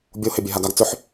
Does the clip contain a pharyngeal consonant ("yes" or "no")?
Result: yes